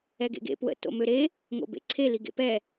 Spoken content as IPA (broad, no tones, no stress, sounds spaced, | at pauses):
ɛ ɡ ḛ ɡ ḛ p w ə̰ t o̰ m ø ɾ e | ŋ o̰ b ḛ ǀʰ e l i ɡ ḛ p ɛ